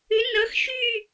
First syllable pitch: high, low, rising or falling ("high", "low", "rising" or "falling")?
rising